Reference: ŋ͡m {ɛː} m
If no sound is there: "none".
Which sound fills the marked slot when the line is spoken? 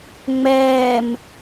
ɛː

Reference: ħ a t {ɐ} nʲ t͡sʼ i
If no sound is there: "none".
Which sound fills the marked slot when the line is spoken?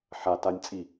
a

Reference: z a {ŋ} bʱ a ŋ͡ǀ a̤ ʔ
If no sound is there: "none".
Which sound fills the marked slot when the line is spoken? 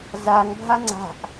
ŋ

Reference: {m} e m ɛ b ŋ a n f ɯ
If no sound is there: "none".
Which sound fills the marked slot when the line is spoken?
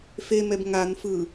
f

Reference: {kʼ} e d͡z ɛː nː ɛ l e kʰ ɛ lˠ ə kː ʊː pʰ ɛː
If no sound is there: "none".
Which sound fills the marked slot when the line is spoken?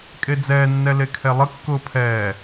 kʼ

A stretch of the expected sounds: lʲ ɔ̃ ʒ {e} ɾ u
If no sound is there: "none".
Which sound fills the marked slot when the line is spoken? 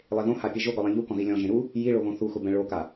ẽ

